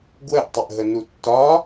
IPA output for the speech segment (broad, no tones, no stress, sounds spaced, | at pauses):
ɡ w ə ʔ tˤ ʏ ʔ ɦ ə n u tː ɒ